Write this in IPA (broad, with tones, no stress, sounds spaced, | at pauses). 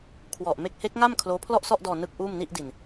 kʰ w ɔ˨˩ ʔ m e˦˥ k̚ h e˦˥ k̚ ŋ a˥˩ m kʰ l oː˦˥ pʰ l ɔ˥˩ ʔ s ɔ˥˩ ʔ d ɔː˧ n ɯ˥˩ k̚ ʔ uː˥˩ m n i˥˩ ʔ d i˨˩ n